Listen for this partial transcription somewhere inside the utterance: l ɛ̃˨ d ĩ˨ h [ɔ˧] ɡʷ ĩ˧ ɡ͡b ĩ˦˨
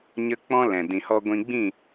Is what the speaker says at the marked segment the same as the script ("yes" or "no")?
yes